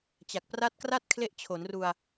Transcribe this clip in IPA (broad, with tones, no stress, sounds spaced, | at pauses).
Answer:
t͡ɕ a˨˩ k̚ p r a˦˥ t̚ k r a˥˩ t̚ kʰ l e˥˩ ʔ t͡ɕʰ o˩˦ n r u˧ a̯